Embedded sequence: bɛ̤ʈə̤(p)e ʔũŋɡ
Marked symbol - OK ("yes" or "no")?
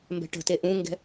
no